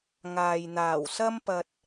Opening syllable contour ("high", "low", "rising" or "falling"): low